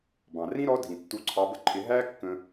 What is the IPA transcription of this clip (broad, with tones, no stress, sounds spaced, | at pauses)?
b ɑ̃˩ r ĩ˥ ɾ ɔ˧˥ dʱ ĩ˩ tː u˧˥ ǀʰ ɑ˧˥ b ə˥ ǃʰ ɪ˧˥ ɦ æ˥ kː ə̃˧